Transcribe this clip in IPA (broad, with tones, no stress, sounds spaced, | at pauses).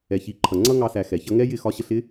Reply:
ɛ˨ ç i˨˦ ǃʰ ʌ˨ ŋ͡ǀ ʌ˦ ŋ ɑ˧ s æ˨ x ɛ˨ ç ʌ˦ ŋ ɛ˦ j ɪ˦˨ x ɒ˦ ɕ ə˦ ɬ ɪ˦